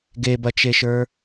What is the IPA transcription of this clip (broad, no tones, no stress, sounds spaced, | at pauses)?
ɡ e b ɐ t͡ʃ e ʃ ə˞